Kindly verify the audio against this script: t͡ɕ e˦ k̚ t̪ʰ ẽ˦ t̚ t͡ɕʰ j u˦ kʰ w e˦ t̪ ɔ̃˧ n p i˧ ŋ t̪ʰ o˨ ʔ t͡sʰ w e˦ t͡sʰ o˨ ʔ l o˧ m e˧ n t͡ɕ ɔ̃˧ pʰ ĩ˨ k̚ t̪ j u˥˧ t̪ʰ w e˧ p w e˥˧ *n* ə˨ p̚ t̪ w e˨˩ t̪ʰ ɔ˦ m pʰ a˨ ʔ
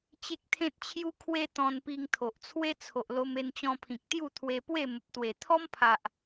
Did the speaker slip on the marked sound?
yes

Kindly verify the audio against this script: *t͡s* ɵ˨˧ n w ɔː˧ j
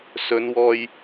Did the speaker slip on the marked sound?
yes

